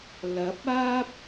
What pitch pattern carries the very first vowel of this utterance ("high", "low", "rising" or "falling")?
rising